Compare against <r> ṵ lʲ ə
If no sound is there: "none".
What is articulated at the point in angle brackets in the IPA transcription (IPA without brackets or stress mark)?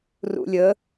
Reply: r